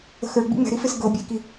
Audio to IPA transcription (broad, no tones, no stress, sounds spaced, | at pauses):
ə̤ x ə˞ ɡ͡b ḭ ŋ͡m ɛ̤ ɾ i f e s ɡ ɤ bʲ e k i